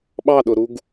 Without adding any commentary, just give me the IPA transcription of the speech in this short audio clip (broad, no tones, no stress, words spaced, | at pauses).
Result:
ɓɑɗʊɾuɡ